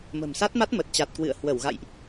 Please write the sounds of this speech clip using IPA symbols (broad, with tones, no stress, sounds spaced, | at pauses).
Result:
m ə̤˨˩ m s a˦˥ t̚ m a˦˥ t̚ m ə˨˩ t̚ t͡ɕ a˨˩ t̚ k w ɨ̰˧˨ ə̯ h w ə˧˩ w ɣ a̰˧˨ j ʔ